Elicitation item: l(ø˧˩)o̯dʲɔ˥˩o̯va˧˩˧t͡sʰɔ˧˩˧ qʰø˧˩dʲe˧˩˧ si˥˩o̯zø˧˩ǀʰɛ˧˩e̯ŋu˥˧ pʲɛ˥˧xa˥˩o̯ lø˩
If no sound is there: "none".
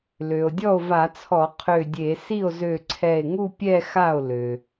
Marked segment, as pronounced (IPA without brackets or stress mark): ø˩